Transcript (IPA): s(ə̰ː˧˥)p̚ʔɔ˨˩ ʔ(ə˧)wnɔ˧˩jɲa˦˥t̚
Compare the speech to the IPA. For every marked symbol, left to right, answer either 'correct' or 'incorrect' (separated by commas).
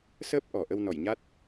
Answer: incorrect, correct